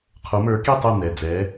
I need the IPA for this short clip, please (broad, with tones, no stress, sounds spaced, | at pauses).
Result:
qʰ o˨˦ m ə˞˨˦ k i˥˨ tˤ o˥˨ n̪ ɛ˩˧˩ d͡z ɛ˨˦